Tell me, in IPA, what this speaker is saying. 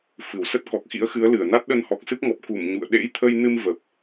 f ɨ˧˩ w s ə˦˥ t̚ k ɔ˨˩ k̚ x ḭ˧˥ ə̯ x ɨ˨˦ ə̯ l ɨ˧˩ ə̯ n a˦˥ t̚ ɗ ə˧ n h ɔ˨˩ k̚ s ɨ˦˥ p̚ ŋ ɔ˨˩ p̚ k u˧˩ m ɲ ṵ˧˨ ə̯ ɗ ḛ˧˥ j t̪ʰ ə˧ j n ɨ˧ m v ə˨˩ p̚

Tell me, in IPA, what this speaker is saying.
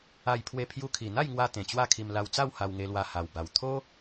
a˧ j pʰ w e˧ pʰ j u˧ kʰ i˨˩ n̪ a˥˧ j ŋ w a˧ t̪ ẽ˨˩ t͡ɕ w a˥˧ kʰ i˧ m l a˧ w t͡s a˥˧ w h a˧ w ŋ e˧ l w a˧ h a˨˩ w b a˨˩ w t̪ʰ o˦

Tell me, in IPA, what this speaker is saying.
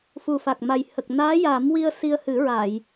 f u˨˩ f a˨˩ k̚ m a˨˩ j h ə˨˩ k̚ n aː˧˥ j a˨˩˦ m w i˧ ə̯ s i˧ ə̯ h ɨ˨˩˦ ɹ a˨˩˨ j

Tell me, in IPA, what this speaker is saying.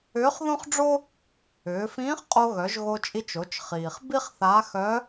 ʏː˧˥ χ ð õ˥ χ ɖ͡ʐ o˥ | ʏː˩˧ f ĩː˧˥ χ qʼ o˧ ɣ œ˩˧ ʒ ɣ o˧ t͡ʃʼ i˧ t͡ʃ o˩˧ t͡ʃ χ iː˩ χ b i˥ χ θ a˧˥ x œ˧˥

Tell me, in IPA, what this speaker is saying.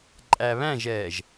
ǃʼ æ β æ̃ ʒ ɛː ʒ

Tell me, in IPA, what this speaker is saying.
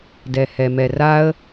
d ɛ h ɛ m ɛ r a ə̯

